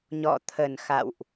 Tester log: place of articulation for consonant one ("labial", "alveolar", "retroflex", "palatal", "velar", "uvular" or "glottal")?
palatal